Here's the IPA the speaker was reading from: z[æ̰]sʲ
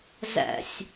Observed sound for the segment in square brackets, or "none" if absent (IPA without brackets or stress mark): æ̰